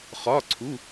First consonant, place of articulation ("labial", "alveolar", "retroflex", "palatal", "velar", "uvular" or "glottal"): uvular